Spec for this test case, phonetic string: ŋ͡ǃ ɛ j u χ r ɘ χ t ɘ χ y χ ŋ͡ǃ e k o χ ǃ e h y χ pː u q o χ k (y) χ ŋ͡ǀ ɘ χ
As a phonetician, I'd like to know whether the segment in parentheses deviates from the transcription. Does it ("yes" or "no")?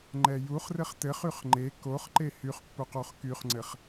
no